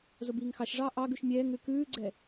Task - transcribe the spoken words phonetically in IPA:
zobiːŋxɑʃʐɑː ʔɑɡʉʃ mʲɛːŋɾʉ kʉːɡ͡ǀɛ

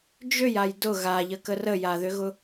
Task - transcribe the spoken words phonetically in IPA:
d͡ʒøjaj dʊ ɣaʎəkə rəjaðʏɣʊ

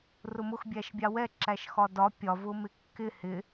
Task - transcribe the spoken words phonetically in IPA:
rʊmʊx bʲæʃbʲɑwɛ ǁæʃxɒdɒ pʲɒvʊmɪ kːɪ hɪ

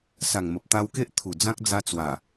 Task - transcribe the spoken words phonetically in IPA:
sa˨˩ŋmə˨p̚t̪a˧wke˦ʔ t̪ʰu˨˩ d͡zã˦k̚d͡za˧ t͡swa˨˩

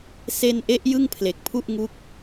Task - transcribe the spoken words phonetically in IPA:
se˧nʔe˦˥ʔ jɯ˥˩ŋpʰle˨˩k̚pʰu˥˩ʔŋu˦˥k̚

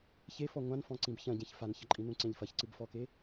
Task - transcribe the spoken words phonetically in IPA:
çefɔ ŋʷãnfɔ̃ǀĩb çɐ̃ɟẽç fançɐǃʼĩ nũǀẽʎfɐç ǀɨbfɔke

